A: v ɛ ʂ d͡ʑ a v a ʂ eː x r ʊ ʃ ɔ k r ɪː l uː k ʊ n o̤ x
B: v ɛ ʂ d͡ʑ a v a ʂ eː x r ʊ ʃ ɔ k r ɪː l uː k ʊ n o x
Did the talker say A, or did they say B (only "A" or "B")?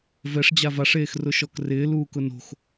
A